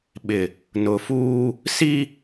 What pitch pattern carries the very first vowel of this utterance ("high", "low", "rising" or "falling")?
low